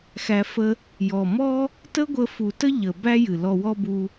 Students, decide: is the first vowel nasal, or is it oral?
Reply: oral